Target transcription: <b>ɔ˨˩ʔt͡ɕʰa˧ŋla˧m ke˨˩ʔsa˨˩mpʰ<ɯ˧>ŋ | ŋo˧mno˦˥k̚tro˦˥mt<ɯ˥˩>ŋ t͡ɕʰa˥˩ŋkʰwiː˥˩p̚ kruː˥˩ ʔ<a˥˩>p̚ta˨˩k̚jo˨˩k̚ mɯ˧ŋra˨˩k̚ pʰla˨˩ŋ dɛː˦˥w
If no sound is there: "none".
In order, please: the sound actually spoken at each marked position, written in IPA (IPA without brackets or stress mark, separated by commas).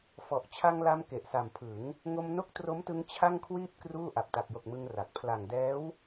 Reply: f, ɯ˩˦, ɯ˧, a˨˩